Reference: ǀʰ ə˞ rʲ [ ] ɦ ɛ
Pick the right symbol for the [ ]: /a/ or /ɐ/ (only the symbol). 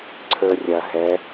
ɐ